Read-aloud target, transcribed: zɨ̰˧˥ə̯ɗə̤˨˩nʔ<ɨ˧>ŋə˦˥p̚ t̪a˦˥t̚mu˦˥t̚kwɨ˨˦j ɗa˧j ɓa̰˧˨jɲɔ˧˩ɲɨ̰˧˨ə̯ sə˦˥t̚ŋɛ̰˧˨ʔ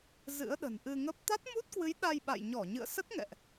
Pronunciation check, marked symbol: correct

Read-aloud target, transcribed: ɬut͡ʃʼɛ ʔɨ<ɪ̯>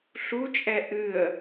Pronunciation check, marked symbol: incorrect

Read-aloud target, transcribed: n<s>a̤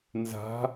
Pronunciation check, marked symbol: incorrect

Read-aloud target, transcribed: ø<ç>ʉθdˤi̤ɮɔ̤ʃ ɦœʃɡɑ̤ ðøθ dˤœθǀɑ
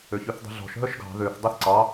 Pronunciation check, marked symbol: correct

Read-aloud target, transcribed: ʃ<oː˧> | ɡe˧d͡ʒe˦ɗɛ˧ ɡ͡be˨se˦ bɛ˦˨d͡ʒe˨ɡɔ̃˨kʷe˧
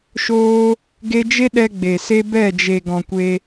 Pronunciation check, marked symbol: incorrect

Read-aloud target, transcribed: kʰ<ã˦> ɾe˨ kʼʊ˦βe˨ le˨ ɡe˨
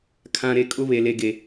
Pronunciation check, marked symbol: incorrect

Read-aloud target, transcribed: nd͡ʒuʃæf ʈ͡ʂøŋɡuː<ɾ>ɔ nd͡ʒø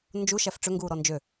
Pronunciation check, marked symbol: correct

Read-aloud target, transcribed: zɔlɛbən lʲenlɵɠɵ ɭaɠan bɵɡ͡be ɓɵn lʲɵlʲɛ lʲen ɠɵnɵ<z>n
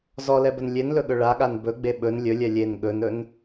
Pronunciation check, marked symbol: incorrect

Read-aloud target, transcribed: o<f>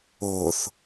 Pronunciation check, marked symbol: incorrect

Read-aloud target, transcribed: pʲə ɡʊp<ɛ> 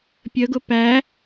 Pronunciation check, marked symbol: incorrect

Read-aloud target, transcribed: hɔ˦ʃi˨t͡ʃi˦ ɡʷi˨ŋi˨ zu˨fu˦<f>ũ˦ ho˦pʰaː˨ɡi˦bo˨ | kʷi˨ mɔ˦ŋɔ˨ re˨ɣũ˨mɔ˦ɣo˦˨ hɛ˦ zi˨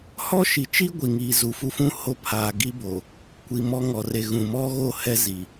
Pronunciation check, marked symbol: correct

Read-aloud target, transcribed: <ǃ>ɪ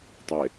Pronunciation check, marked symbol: incorrect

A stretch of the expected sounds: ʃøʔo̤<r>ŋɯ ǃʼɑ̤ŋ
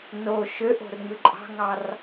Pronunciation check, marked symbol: correct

